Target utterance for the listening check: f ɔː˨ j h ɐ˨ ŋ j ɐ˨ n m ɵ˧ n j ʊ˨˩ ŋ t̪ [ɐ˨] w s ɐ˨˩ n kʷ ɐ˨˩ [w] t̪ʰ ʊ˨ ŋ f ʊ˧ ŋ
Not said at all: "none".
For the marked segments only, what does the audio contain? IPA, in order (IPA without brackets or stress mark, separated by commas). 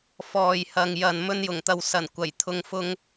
ɐ˨, j